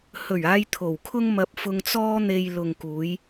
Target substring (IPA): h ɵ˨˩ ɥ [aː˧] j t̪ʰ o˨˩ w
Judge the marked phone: correct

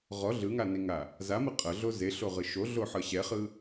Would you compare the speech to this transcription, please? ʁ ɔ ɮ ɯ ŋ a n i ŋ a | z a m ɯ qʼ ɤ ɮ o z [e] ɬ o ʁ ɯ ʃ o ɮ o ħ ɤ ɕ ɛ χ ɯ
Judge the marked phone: correct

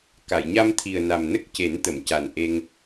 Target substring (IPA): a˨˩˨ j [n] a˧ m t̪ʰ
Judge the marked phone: incorrect: ɲ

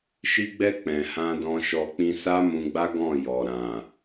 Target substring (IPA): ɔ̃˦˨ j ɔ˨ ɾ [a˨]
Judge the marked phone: incorrect: ã˨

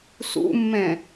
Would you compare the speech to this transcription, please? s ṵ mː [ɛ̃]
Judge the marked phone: correct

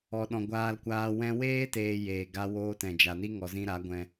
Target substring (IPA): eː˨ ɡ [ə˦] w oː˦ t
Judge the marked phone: incorrect: a˦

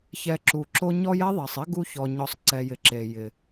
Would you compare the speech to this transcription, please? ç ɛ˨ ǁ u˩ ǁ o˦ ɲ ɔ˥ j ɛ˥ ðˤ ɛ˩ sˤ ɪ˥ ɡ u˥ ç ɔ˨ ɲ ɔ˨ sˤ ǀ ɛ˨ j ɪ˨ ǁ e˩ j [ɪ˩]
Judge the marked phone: correct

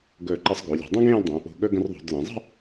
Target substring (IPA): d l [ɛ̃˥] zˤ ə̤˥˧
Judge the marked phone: incorrect: ɛ̃˩˧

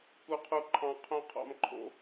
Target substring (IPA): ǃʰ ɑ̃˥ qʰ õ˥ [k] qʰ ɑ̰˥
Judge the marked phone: incorrect: none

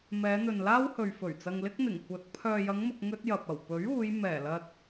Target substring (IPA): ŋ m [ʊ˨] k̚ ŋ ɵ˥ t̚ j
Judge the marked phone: correct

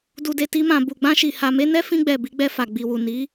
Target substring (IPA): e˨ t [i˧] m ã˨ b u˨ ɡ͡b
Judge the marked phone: correct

